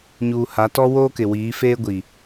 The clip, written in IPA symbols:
ɲ uː˨ h a˨˦ t ɔ˦ w oː˦ k ɪ˨ w iː˨˦ f eː˦ ɡʷ i˨

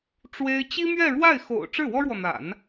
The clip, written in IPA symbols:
ʈ͡ʂ w e˥ ɪ̯ t͡ɕ i˥ m ɥ ɛ˥˧ ɻ w a˥˩ ɪ̯ x o̰˨˩ ʊ̯ ʈ͡ʂ ɻ̩˥˩ w ɔ˥ ɻ w ɔ˨ n̪ a̰˨˩˦ n

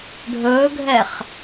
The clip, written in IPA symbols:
ɖʱ ɵː ɡʱ ɛ χ

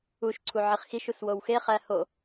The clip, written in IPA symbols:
u ʃ ǀʰ u ʕ i χ x i ʃ u s w o w x e χ æ h o

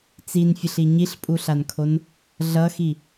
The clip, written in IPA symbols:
t͡s i n fʲ ə ɬ i ɲ i ɬ pʼ u ɬ a n kʰ o n | ɮ ʌ x i

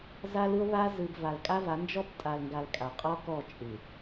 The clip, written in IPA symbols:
z a˦ l ɯ˦ o̯ β a˦ z ɯ˨ b v a˨ l kʼ a˦ v a˨˦ n d͡ʒ ɔ˦ b tʼ a˨ l ŋ ɡ a˨ l kʼ a˨ qʼ ɔ˦ k ɔ˦˨ t͡ʃʼ ɯ˨

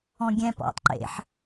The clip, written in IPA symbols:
ɔ̃ ɡʲ ɛ̃ p ɔ̰ tˤ ǃ ḛ ħ

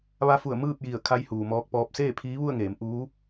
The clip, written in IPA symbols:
ʋ a˧˥ f u˧˩ ə̯ m ɯː˥˨ p̚ j i˧˩ ə̯ kʰ a˧˥ j h uː˩ m ɔː˧ k̚ p ɔː˧˥ p̚ s eː˥˨ pʰ iː˧˥ ʋ u˥˨ ə̯ ŋ eː˩˧ m ʔ uː˧˥

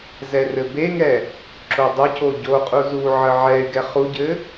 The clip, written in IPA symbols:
z ɛ r ɘ b e ŋ ɛ | ǁ o dˤ ə c o ɟ o qʼ u z u ʕ ə ʕ ɛ y̯ ɡ ɛ χ u ɟ ɘ

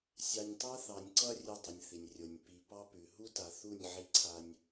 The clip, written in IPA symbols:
sʲ ɑ˨ nʲ tˤ a˦ θ ɑ˨ nʲ ǀ ʌ˦ rʲ ʉ˦ dˤ ʌ˨ nʲ θ i˨ nʲ rʲ o˨ nʲ p i˨ p ɑ˦ p ʉ˨ ɦ u˦ t a˨ θ u˦˨ nʲ ʕ i˦ ǀʰ a˦ nʲ

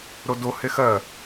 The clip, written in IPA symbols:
ɾ o d o h e x ɜ

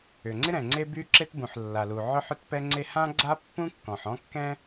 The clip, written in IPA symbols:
ʏ˩ ŋ͡ǀ ɪ˥ ɾ ɛ̃˩ ŋ͡ǀ e˥ b y˥ ǁ e˥ t b ũ˩ ħ lː a˩ l u˩ ʕ œ˥ ħ ʏ˥ t p ɛ˥ ŋ͡ǀ e˥ h ã˥ ɡ͡ǀ a˥ pː ũ˥ kː ɔ̃˩ ħ ɔ̃˥ kː ɛ̃˥

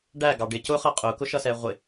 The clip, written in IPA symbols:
ɖ æ ɡ ɑ ɖ ɪ c ʊ χ ʌ qʼ ʊ k ʊ ʃ ʌ s ɛ ʁʷ ɪ

